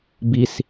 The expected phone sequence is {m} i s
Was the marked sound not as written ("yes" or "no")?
yes